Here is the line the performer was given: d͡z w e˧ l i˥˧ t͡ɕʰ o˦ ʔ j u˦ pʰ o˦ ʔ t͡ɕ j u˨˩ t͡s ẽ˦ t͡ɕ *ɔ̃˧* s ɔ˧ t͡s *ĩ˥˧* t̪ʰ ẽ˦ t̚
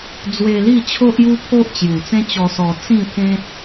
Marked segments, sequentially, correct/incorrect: incorrect: ɔ˧, correct

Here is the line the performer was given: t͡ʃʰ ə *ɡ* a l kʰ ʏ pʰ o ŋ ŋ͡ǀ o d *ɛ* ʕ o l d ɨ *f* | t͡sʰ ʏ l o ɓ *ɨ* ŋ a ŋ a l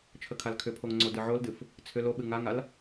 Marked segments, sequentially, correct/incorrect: incorrect: kʰ, incorrect: ɨ, correct, correct

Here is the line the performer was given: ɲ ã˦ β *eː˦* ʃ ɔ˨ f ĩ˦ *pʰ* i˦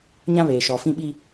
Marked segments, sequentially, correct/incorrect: incorrect: eː˨, incorrect: ɓ

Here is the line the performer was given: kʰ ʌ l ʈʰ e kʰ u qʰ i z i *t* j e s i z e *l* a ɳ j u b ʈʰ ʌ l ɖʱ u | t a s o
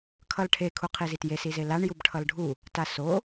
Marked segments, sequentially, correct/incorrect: correct, correct

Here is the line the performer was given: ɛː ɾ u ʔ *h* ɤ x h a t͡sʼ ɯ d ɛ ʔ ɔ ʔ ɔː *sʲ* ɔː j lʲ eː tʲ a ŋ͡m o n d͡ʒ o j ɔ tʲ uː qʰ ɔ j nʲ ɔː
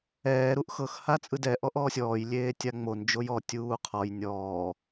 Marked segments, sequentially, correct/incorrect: incorrect: x, correct

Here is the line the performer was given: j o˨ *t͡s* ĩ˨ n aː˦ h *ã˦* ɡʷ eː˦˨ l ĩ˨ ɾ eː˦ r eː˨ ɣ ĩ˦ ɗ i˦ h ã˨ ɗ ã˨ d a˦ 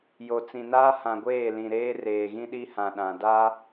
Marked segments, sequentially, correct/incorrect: correct, incorrect: ã˨

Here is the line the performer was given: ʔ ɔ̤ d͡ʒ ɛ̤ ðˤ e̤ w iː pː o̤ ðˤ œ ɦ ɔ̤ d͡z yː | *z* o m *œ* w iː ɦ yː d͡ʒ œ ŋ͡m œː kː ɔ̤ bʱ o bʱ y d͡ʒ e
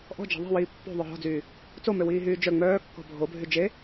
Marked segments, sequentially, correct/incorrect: incorrect: t͡s, incorrect: ø

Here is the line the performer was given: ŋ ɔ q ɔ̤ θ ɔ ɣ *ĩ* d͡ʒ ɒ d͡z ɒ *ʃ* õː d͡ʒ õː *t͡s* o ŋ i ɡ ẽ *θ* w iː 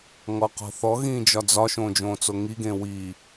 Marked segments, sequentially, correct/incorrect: incorrect: ĩː, correct, correct, incorrect: none

